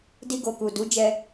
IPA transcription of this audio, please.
di˧ɡo˨ku˨ du˨˦d͡ʒɛ˧

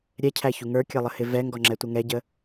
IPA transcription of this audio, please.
ɾʲɛcʰæçu ŋə˞kʲəlˠəhɪ vɛŋɡɔŋ͡ǁɛtʷə ŋɛɟə

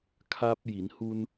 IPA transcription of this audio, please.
kʰa˧p̚ji˩˧nhu˧n

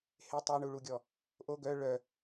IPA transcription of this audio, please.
he tˤoɳuɭuɡʲɔ | ʔo ɡœ ɭœ

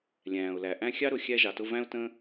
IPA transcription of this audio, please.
lʲæ̃ː˩ʊ̯læ˩ ʔæ̃˦ xʲɑ˥ɾʊ˨xʲæ˦ ʒɑ˨tʊ˦ væ̃˥ʊ̯ tə̃˥

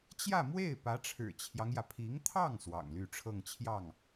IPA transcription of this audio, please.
t͡ɕjä˥˧mwe˥˩ɪ̯ pä˧˥ʈ͡ʂʰɻ̩˨˩t͡ɕʰjɑ˦ŋjä˩ pʰi˧˥ŋt̪ʰɑ˥˩ŋ swɑ̰˨˩ŋly˥˧ʈ͡ʂʰɤ˥˧ŋt͡ɕʰjɑ˥˩ŋ

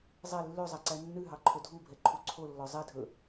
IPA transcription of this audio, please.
zˤɛ lːøzˤæ ǀænːʉɦɑ ǃʰɵdʱubʱɛ ǃʰuǀʰolːɔ zˤɛdʱɵ

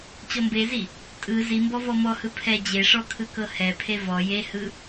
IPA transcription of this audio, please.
t͡ɕɔmbezi | tʼɯ zimbɔ vɔmɔhɯ pʰɛ d͡ʑeʂɔ kʰɯkɤhɛpʰe vɔ jehɯ

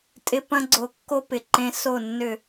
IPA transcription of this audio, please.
tʼɪ˧ pɐ̃˦ɡ͡ǀo˧ kːo˧pɪ˨ ǃẽ˧ so˦˨nːʏ˦˨

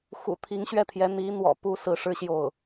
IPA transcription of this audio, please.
xṵ˨˩t̪ʰi˧˥ŋɕɥɛ˥˩t̪ʰjɛ˧˥ n̪i˧˥ n̪wɔ̰˨˩pu˧˥ sɹ̩˧˥ʂɻ̩˥ ɕjo˥˩ʊ̯

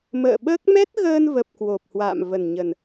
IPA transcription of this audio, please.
mə̰ː˧˨ ɓəː˦˥k̚ mɛ˦˥t̚ɣəː˧nvə˨˩p̚ kwo˨˩p̚hwa̰ː˧˨m və˨˩nɲə˨˩n

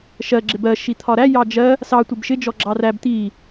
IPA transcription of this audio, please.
ʃɜ ɡ͡ǁɪbɜ ʃit̪ʰɒɾæ jɑd͡ʒɜ | sɑ tʷɪbʃɪ d͡ʒɔɡ͡ǁɑræb t̪i

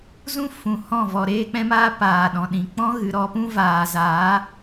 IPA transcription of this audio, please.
zũ˦ fũ˨hɔ̃˦˨ vɔ˧ ɾeː˦k͡pɛ̃˦maː˦ paː˨ɗɔ̃˨ɗĩ˨ k͡pɔ̃˦ɣɨ˨ɾɔ˧pũ˦ vaː˨za˨˦

